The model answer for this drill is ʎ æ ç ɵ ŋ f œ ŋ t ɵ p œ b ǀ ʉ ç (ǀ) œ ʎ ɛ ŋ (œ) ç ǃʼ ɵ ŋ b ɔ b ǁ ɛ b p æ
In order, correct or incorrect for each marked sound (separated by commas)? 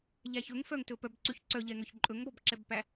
correct, correct